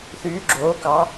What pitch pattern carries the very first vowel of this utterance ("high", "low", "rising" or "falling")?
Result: rising